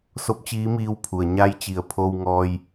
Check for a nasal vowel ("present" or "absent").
absent